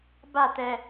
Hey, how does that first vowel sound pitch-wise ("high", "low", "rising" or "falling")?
falling